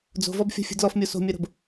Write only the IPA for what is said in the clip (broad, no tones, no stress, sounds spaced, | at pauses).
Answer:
d͡z o̤ v ɔ b fʲ o̤ fʲ ṳ d l ɔ f mʲ o s o̤ mʲ ɜ ɾ o̤ b